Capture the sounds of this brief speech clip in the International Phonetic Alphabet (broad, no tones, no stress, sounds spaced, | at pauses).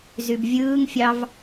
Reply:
z y b vʲ ɯː ŋ fʲ ɑ v